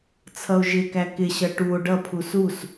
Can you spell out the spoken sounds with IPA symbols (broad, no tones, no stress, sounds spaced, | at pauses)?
t͡sʰ ʌ o̯ ʒ ɪ k æ k ɪ ɕ ʌ ʈ u o̯ ɖ ʌ pʰ u s u s